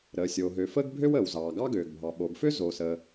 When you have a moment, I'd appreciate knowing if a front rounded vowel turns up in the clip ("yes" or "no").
yes